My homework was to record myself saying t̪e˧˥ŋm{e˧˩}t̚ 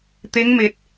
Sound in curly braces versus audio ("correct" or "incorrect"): correct